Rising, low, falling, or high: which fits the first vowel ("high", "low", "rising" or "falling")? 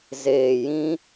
low